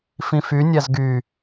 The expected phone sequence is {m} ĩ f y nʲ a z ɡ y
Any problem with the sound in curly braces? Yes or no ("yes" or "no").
yes